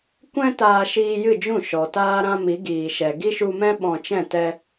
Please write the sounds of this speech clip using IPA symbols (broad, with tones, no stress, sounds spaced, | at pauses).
kʷ ɛ̃˦ t aː˧ ʃ iː˧ j ɨ˦˨ d͡ʒ ũ˦˨ ʃ ɔ˨ t aː˦ ɾ ã˦ m i˨˦ ɡ iː˨ ʃ ɛ˨ ɡ i˦ ʃ u˧ m ɛ̃˦ ɓ ɔ̃˧ t͡ʃ ɛ̃˦˨ t ɛ˧